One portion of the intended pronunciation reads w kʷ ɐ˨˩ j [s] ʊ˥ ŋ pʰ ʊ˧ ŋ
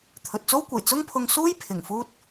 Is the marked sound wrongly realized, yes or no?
yes